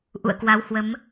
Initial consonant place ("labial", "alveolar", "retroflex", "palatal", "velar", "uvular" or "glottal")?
glottal